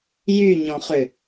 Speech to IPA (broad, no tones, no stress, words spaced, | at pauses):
jyɲɔ̃χʏ